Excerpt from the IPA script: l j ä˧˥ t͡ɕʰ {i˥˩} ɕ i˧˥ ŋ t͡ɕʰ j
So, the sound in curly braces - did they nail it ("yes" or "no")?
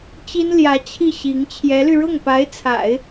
yes